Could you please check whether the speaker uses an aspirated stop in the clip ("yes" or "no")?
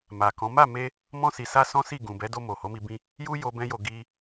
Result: no